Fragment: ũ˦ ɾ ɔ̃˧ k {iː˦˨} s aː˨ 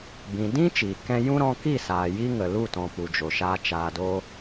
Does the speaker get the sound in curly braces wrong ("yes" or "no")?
yes